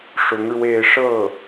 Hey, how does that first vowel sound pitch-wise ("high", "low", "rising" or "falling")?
rising